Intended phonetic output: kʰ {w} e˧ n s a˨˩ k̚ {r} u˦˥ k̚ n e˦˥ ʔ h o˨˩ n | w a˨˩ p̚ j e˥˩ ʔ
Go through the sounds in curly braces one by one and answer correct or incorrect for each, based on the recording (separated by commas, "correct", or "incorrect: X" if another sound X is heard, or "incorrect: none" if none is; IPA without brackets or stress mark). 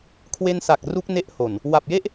correct, correct